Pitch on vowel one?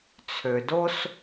low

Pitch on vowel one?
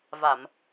low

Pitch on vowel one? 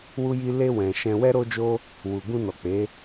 high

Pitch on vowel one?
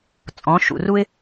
rising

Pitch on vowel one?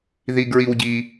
low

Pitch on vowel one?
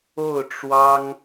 falling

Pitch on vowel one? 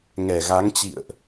low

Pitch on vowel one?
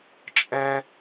high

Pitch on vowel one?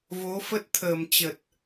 rising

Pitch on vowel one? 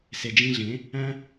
low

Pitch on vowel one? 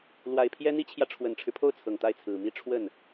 low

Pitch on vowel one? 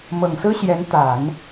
low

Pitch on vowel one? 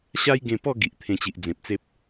high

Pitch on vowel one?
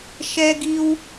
high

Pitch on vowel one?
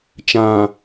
low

